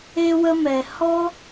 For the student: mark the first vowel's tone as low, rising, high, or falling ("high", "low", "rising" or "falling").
high